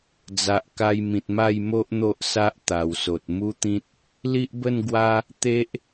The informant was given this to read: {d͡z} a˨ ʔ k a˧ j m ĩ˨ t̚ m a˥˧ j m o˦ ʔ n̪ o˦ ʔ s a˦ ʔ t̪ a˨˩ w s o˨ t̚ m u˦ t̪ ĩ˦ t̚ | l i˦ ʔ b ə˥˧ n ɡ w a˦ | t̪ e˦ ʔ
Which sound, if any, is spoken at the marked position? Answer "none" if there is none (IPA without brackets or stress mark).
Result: d͡z